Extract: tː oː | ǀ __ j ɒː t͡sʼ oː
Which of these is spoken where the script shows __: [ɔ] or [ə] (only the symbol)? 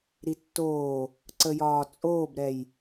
ə